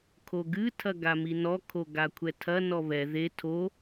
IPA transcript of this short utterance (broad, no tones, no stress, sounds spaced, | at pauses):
kʰ o ɡ ɨ tʰ ɐ ɡ a m i n ɔ kʰ o ɡ a kʷʰ ɛ tʰ ɐ n ɔ β ɛ ð e tʰ o